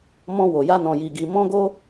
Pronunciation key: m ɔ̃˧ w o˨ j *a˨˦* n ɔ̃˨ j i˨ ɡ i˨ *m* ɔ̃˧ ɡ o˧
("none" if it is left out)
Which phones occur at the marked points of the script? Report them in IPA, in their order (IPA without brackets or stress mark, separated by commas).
a˧, m